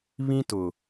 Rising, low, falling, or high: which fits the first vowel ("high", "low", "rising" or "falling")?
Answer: high